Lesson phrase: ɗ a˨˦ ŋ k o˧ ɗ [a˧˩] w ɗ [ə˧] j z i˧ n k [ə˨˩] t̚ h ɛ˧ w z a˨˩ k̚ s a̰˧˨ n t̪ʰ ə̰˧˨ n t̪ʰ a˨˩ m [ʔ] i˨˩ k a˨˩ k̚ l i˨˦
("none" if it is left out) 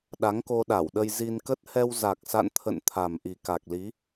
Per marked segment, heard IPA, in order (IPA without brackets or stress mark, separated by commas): a˧˩, ə˧, ə˦˥, ʔ